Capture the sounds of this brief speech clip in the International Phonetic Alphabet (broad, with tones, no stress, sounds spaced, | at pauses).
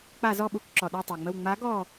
k͡p a˧˩˧ z ɔ˧˩ ɓ u˧˩ k ǁ ɔ˩ ɗ ə˞˧˩ tˤ a˩ ŋ͡m ə˧˩ w ŋ͡m a˨˥ ɡ ɔ˧˩